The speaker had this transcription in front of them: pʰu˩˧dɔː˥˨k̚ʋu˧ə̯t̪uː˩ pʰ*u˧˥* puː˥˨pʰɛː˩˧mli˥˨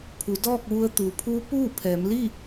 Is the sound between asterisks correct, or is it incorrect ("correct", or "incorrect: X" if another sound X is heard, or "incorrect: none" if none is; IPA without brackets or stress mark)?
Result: correct